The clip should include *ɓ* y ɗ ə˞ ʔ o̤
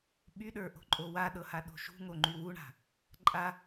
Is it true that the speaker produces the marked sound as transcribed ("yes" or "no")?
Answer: yes